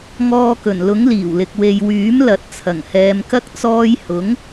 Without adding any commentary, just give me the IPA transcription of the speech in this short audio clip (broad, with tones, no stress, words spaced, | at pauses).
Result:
ŋɔː˧kɵ˨˩nlʊ˨˥ŋ liː˨˩wlɪ˨k̚ we˨jwyː˨˥m lɐ˨˥t̚t͡sʰɐ˨˩ŋhɛː˨˧mkɐ˥k̚ t͡sɔː˧jhʊ˨˥ŋ